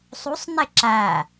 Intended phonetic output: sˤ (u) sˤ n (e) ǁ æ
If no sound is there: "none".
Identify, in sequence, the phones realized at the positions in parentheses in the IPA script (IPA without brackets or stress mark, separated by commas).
u, e